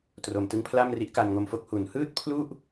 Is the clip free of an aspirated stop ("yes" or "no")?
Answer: no